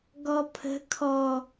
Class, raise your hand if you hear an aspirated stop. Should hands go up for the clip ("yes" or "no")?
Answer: yes